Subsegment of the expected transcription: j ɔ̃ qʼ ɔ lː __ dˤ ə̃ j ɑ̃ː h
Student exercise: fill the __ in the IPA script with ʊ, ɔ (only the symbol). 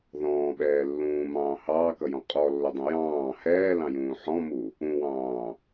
ʊ